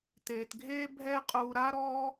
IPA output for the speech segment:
t eː˩ t ɡʱ eː˥ bʱ ɛː˥ qʼ uː˧ ɾ a˥ ɾ ɔː˥

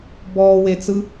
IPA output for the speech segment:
b ɔː w e t͡s ɯ

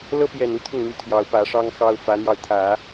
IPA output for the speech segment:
l ɤ˥ p j ɛ˨˩ n u˥ t̪ʰ ʊ˥˩ ŋ n̪ y˧˥ t̪ʰ j ɑ˧˥ ʊ̯ p ä˧˥ ʂ ɑ˥ ŋ x ɑ˥ ʊ̯ f ä˧˥ n̪ j ɑ˧ ʊ̯ t̪ʰ ä˨˩˦

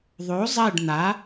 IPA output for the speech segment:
ðˤ o˨˥ zˤ ɛ˦˨ ɖ n̪ a˨˥

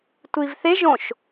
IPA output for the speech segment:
tʷ i v θ e ʒ õ ʃ

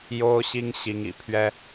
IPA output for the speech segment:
j o˥ ʊ̯ ɕ i˥ ŋ ɕ i˧˥ ŋ ḭ˨˩ pʰ ɥ ɛ˥

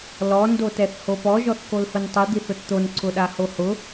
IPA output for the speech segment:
l ɔ n d o t ɛ θ h o p ɔ ʒ ɔ θ k o l h ʊ n tˤ i d̪ i θ ʊ t t̪ o n ǀ ʊ ɗ a h o h ʊ

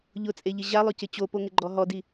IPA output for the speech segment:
ʎ ʊ t͡sʼ e ʎ ɪ ʑ a lˠ ʊ c ɪ t͡ɕ o p o ŋ ɪ ɡ͡ǃ ɔ ɦ ɔ d i

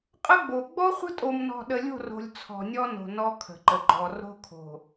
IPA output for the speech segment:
qʼ ə˦ ɡ͡b o˨ ɡ͡b ɔ˦ χʷ ə̤˦ tʼ o˨ m n ɔ̤˨ ɗ ə˨ lʲ o̤˦˨ r o̤˨ lʲ t͡sʰ ɔ̤˨ nʲ ɔ˦ n o̤˨ n ɔ˦ kʰ ə̤˨ ǃ ə˨ ɡ͡ǃ ɔ˨ r o̤˦ kʰ o̤˨

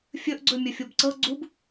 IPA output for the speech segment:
fʲ ɵ ʔ ɡ͡ǀ ɵ mʲ ɵ fʲ o b ǀ ɤ ɡ͡ǀ u b

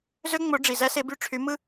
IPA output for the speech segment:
z ø˥ ŋ͡m o˧˥ ɖ͡ʐ i˩˧˩ z æ˥ s e˧˥ b y˦˨ ʈ͡ʂʰ y˧˥ m ɯ˥

